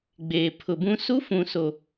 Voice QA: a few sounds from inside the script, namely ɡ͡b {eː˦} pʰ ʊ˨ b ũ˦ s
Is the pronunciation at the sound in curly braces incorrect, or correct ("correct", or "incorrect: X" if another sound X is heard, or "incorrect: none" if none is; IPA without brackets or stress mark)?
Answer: incorrect: eː˨